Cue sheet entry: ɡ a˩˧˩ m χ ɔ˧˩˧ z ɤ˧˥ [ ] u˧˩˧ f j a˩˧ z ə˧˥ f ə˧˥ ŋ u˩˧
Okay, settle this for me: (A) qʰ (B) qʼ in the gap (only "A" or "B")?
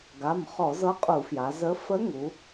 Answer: B